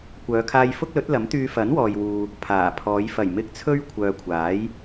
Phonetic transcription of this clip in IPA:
kʷœː˨˧kʰaː˧jfʊ˥k̚lɵ˨˥t̚ lɐ˨˥mt̪yː˧fɐ˨˥n wɔː˨jwuː˨ | pʰaː˨˩ pʰɔː˨˧j fɐ˨˩jmɪ˧k̚ t͡sʰɵ˥ɥkʷʰœː˨kʷʰaː˨˥j

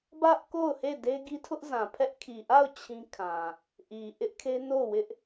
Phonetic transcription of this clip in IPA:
bä˦ʔko˦˨ʊ̯ he˦˨de˦ɡi˦ tʰʊ˦ʔzã˨pʰɛ˦ʔ kʰi˨ʔa˦˨ʊ̯ t͡ɕʰĩ˦kʰã˨ | ʔi˨ʔɪ˦ʔkʰe˦ no˦˨wɪ˦ʔ

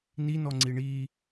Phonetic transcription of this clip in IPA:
ninɔŋ͡ǀi ɳi

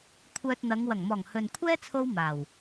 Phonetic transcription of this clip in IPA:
kʷʰœː˧t̚n̪ɐ˨˧ŋ wɐ˨˩ŋmɔː˨˩ŋ hɵ˨n kʷʰɛː˥t͡sʰo˧w maː˨˩w

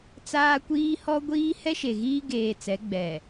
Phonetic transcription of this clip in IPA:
t͡saː˦kʷiː˦hɔ˦ɡʷiː˦ hɛ˦ʃe˨ɣiː˦ ɡeː˨ t͡sɛ˨˦ɡ͡bɛ˨

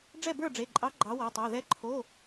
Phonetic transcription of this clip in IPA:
ɖ͡ʐɛ˥˩bə˞˥˩ɖ͡ʐe˩˧˩ǃʼɑ˨˥ ɡ͡ǃɑ˨˥wɒ˩˧˩tˤɛ˩˧˩ ðɛ˨˥ǃʰo˩˧˩

